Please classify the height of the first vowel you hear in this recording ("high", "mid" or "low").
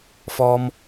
mid